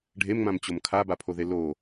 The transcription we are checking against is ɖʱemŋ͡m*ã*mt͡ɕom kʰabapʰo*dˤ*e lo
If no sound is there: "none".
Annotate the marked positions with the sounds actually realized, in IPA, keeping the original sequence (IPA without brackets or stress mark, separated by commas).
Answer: ã, ð